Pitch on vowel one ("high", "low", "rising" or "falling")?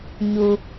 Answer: low